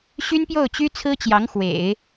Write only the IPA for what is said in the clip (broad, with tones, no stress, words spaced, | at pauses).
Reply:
ɕy˥npjo˥˩ʊ̯t͡ɕy˥ t͡sʰɹ̩˥t͡ɕjɑ˧˥ŋ xwḛ˨˩˦ɪ̯